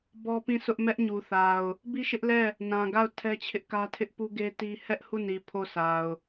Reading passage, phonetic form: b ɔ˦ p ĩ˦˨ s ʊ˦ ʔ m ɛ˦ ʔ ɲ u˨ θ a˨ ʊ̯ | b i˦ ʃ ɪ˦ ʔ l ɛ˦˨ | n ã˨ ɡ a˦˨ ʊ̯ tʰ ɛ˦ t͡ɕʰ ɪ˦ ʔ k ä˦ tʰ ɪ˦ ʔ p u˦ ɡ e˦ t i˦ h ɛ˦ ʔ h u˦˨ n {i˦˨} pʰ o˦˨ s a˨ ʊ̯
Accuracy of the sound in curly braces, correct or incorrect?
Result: incorrect